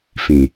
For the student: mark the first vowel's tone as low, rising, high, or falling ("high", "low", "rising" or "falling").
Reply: low